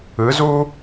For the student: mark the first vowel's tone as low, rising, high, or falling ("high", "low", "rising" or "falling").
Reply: rising